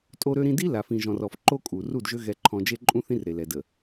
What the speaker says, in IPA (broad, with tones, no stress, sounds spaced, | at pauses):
tʼ o˦ ɾ ø˦ ɾ ĩ˦ d i˦ l a˨ f ĩ˨ ʒ ɔ̃˨ r ɔ˨ f ǃ o˦ kʼ u˨ r u˦˨ d ʒ ø˦ ɣ ɛ˦ ǃʰ ɔ̃˦ d͡ʒ e˦ ǃʼ ũ˦ θ ĩ˦ r ɾ e˨ l ɛ˨ d ə˨